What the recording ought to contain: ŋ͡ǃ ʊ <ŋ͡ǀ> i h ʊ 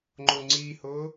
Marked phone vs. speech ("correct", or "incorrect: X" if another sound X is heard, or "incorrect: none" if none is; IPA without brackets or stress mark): correct